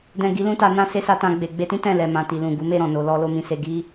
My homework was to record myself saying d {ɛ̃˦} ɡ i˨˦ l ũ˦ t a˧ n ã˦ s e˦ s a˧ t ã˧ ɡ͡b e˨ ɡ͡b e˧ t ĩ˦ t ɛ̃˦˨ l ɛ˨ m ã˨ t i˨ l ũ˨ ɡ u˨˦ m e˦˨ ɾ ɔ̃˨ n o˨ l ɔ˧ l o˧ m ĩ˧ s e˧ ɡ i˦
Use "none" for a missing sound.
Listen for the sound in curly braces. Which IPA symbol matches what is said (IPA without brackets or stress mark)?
ɛ̃˨